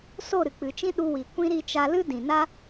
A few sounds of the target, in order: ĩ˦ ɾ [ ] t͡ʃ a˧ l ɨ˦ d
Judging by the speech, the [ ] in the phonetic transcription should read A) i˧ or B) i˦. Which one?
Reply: A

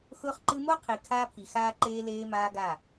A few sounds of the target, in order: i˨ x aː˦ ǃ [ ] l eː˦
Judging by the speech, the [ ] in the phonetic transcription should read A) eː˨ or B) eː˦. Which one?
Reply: B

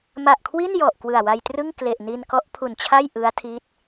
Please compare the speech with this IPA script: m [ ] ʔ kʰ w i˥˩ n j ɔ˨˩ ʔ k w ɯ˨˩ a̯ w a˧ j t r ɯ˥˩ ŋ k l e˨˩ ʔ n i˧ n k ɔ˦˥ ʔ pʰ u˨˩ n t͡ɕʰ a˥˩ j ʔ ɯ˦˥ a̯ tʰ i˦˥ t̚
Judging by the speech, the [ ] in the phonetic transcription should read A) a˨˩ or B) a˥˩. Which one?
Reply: A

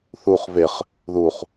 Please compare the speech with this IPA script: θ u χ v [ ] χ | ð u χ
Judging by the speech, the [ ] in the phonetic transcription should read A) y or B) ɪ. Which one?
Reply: B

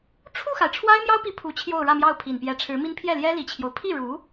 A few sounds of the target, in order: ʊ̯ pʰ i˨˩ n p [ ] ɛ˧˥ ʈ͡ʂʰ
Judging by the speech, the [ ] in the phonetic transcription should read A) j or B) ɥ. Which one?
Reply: A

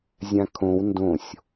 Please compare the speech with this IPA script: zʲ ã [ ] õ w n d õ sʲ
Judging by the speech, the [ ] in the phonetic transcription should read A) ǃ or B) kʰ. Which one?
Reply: B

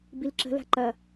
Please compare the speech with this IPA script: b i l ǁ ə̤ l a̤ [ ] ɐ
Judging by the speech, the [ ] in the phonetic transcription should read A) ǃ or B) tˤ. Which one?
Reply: A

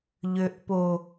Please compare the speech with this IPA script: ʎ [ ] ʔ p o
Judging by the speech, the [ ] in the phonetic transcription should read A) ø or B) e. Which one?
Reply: A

